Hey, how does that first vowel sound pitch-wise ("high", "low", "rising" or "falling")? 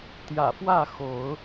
low